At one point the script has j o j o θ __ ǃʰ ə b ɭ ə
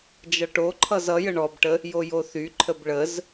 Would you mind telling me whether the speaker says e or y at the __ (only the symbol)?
y